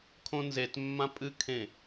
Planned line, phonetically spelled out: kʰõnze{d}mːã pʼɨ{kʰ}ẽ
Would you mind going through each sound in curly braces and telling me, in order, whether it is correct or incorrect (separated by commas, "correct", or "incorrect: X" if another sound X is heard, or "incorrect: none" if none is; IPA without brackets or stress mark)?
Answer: incorrect: t, correct